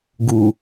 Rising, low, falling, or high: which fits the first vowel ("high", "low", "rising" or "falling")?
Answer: low